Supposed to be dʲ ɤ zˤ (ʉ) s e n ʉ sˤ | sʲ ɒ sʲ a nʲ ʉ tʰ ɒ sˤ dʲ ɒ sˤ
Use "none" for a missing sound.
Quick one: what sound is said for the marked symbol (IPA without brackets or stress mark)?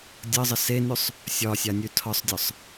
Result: ə